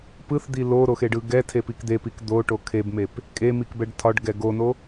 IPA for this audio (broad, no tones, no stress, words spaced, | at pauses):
pɯθd̪i loɾoxeɖɯ ɡɛtʰepik d̪epik d̪oʈo kʰebmep | kʼemikbɛɖ tʰɒɖɡɛ ɡono